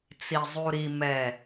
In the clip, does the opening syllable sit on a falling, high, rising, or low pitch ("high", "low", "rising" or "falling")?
low